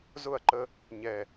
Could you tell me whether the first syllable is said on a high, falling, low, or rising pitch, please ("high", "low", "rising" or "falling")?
falling